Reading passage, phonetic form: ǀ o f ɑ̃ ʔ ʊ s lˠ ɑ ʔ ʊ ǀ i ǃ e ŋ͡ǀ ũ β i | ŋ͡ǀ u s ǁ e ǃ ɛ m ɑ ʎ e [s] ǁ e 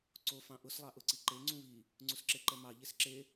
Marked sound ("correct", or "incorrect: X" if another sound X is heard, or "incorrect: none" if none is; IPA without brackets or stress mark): correct